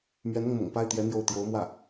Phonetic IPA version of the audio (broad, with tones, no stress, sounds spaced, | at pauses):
m ɥ ɛ˧˥ n ʊ˥˩ ŋ m ʊ̰˨˩ ŋ p a˥˩ ɪ̯ t̪ j ɛ˧˥ n̪ j o˥˩ ʊ̯ t̪ j o˧˥ ʊ̯ m w ä˥˩